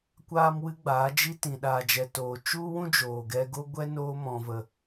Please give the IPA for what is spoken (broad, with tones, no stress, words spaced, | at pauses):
kʷaː˦mwɨ˦ɡ͡baː˨˦d͡ʒi˦ tĩ˨ɗaː˨d͡ʒɛ˨toː˨ t͡ʃu˦wũ˦ d͡ʒoː˨ɡɛ˧ɡo˦ ɡʷɛ˦noː˧ mɔ̃˨və˨